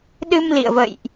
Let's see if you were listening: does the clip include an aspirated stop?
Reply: no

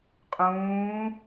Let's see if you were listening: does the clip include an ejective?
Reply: yes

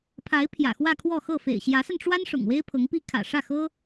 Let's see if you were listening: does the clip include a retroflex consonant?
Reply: yes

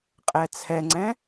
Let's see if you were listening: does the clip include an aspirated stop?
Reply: yes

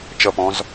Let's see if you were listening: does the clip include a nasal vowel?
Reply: yes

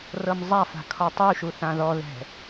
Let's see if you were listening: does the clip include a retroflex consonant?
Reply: no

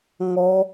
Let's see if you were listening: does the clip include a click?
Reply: no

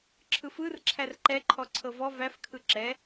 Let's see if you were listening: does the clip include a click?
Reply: yes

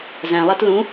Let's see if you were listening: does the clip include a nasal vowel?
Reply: yes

